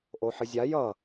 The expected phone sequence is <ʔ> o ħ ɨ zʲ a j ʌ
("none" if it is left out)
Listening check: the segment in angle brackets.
ʔ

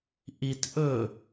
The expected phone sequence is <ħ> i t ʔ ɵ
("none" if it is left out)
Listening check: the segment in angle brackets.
ʔ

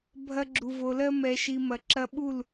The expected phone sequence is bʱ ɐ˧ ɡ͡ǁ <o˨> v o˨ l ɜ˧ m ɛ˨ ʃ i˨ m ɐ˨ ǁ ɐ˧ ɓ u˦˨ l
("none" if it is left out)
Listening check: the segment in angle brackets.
u˨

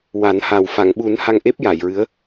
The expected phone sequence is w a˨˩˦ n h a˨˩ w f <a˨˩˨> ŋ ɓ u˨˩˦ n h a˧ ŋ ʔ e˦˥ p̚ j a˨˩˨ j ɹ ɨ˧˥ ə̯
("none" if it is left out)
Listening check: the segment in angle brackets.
a˨˩˨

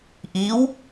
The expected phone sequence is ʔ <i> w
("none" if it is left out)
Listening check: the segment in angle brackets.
i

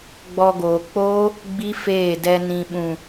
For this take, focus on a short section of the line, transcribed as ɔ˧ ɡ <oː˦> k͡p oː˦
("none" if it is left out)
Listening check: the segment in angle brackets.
oː˨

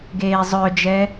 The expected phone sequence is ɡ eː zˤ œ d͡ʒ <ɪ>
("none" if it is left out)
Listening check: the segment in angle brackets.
ɛ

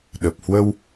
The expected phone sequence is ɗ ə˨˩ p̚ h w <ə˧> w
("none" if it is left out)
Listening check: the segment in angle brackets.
ə˧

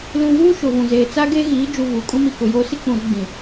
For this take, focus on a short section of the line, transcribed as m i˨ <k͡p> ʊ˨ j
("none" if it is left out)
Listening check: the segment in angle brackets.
k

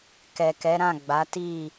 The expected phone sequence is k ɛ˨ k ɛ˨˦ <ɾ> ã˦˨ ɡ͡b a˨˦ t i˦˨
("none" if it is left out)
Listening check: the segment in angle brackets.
ɾ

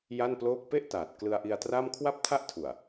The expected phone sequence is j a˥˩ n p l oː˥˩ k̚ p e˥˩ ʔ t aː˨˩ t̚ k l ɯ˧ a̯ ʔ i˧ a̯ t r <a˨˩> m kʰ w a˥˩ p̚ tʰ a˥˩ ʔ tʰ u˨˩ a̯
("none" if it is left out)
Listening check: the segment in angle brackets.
a˥˩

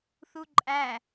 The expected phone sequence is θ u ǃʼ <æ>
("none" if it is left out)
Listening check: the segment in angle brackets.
æ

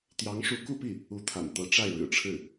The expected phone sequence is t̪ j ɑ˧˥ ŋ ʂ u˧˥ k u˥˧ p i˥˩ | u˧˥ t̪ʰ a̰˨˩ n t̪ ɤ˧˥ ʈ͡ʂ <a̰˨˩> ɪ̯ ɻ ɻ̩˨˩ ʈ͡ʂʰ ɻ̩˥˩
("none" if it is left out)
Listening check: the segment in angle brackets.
a˥˩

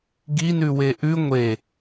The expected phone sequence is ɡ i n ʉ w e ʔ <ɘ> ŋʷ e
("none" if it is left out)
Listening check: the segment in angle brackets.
ʉ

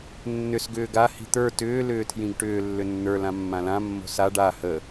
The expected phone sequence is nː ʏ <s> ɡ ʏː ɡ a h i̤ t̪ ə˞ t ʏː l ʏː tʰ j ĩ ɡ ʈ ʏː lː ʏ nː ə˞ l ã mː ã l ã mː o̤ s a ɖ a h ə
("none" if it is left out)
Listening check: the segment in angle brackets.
s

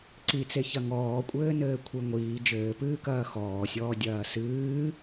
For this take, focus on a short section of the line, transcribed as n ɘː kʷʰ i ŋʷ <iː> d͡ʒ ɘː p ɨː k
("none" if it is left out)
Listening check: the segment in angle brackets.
iː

